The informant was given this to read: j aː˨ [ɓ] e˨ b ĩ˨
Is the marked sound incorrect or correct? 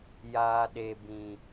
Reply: incorrect